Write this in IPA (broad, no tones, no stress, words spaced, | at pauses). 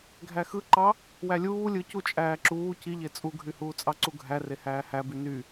ɡʱæxɯǃɑ | wælʲuː lʲɯcu t͡ʃʼæːǁuː ciʎe t͡sʼuɡʱyhuːt͡sʼɑ ǀuɡʱæ rehæːhæby ny